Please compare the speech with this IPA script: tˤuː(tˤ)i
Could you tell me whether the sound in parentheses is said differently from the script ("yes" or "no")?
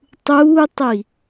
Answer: no